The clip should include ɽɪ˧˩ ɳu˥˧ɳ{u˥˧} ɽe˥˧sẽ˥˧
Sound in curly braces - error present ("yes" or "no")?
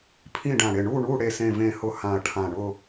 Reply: no